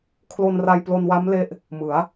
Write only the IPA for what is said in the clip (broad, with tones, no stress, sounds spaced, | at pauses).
kʰ l o˧ n r a˧ j p l o˧ n w a˦˥ m l e˦˥ ʔ | m ɯ˩˦ a̯